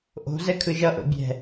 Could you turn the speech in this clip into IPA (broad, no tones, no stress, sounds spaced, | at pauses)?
ʔ o̤ z ɛ kʰ ɯ ʒ ʌ ʔ o̰ bʲ ɛ̤